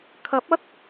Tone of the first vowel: rising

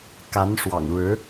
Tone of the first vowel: rising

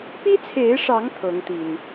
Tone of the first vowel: high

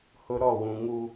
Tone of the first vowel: high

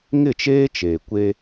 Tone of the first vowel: falling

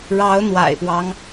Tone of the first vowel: rising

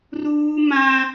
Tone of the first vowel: high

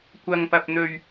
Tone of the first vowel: high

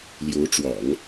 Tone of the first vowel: rising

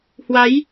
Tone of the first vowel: rising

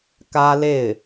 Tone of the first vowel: high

